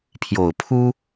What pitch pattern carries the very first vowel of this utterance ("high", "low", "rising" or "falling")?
low